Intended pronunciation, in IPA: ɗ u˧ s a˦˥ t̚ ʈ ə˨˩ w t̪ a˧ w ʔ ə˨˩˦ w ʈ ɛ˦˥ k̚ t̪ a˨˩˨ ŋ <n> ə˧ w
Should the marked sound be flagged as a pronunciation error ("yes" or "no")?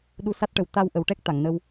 no